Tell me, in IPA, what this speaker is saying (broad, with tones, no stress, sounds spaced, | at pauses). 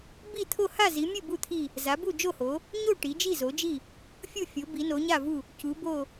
b i˦˨ t̪ʰ o˦˨ h a˦˨ z i˩˧ mʲ ɨ˦˨ b u˦˨ t̪ʰ i˦˨ | z a˩˧ b u˦˨ d͡ʒ o˦˨ h o˩˧ | ɲ o˦˨ ʈ i˩˧ d͡ʒ i˦˨ z o˩˧ d͡ʒ i˦˨ | fʲ u˦˨ fʲ o˩˧ b i˩˧ n o˩˧ ɲ a˦˨ v u˦˨ | c u˩˧ b o˦˨